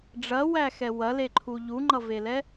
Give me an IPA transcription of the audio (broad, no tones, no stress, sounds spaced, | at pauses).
ɖ͡ʐ ɐ w æ x ɛ w ɐ l e ǃʰ u ʎ u ŋ͡ǃ ʌ v e l ɛ